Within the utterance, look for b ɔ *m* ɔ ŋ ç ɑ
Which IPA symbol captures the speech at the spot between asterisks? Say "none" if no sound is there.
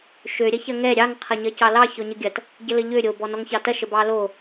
n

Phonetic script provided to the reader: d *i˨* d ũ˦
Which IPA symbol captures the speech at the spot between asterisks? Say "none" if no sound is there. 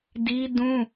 i˦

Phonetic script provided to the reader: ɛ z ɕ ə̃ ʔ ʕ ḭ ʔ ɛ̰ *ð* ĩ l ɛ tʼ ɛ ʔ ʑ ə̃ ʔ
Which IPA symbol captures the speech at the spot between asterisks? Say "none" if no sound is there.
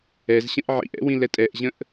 w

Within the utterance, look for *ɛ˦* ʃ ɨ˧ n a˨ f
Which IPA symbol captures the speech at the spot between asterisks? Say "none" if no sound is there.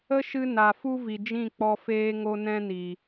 ə˦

